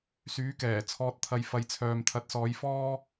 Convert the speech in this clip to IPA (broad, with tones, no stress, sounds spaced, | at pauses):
s yː˨˥ k ɛː˨˩ t͡sʰ ɔː˨ t̚ t̪ʰ ɐ˨ j f ɐ˨˧ j t͡sʰ œː˨ m t̪ʰ ɐ˨˥ t̚ s ɔː˨˧ j f ɔː˥